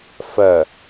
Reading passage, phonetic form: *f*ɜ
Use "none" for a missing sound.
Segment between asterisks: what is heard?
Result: f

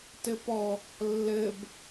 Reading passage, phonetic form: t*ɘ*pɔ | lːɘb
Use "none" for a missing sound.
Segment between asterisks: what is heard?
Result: ɘ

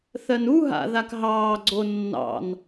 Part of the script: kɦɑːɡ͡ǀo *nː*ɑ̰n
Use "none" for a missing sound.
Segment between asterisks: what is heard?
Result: nː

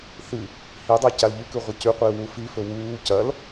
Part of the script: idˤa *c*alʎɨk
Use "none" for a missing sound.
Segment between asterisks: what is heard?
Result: c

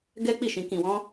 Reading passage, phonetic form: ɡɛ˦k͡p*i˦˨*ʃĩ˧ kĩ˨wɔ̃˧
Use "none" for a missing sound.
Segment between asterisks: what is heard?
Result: i˦˨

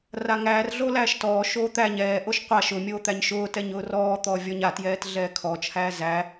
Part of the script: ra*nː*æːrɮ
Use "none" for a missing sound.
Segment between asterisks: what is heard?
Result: ŋ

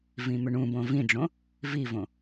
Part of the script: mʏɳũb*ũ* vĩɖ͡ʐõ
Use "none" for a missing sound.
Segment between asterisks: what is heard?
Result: õ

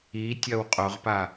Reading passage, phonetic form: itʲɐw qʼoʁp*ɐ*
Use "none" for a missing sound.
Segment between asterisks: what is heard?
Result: a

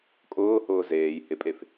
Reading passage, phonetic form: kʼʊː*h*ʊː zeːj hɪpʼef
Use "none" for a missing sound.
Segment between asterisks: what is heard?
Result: h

